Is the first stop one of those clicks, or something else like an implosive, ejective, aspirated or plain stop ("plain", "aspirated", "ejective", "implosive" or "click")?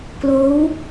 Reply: plain